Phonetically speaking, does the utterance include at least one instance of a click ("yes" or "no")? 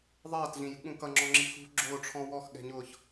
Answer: yes